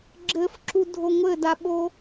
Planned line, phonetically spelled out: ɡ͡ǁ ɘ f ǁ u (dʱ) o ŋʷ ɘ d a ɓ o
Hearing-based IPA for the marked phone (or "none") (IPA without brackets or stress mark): dʱ